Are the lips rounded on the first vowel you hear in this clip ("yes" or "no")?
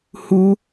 yes